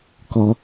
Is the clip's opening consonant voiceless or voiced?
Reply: voiceless